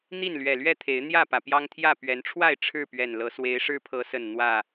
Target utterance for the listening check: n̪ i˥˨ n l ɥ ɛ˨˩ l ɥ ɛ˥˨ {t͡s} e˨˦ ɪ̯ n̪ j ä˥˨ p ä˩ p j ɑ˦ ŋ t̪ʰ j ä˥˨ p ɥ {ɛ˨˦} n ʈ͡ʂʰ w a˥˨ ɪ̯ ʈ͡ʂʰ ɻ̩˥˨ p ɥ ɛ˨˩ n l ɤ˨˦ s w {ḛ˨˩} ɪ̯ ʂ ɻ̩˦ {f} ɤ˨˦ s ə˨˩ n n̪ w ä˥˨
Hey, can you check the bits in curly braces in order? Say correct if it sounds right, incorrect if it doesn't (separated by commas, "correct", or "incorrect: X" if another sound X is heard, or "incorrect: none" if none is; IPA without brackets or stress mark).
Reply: incorrect: t̪ʰ, correct, incorrect: e˨˦, incorrect: pʰ